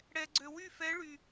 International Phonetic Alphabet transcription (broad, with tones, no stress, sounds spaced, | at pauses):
ɽ ɛ˨ ɡ͡ǀ ø˨ w y˥˨ f ɛ˧˥ ɭ y˨